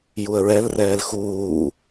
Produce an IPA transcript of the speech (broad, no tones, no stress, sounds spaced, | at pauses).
j u ə̯ ɹ ɛ l r ɛː l x uː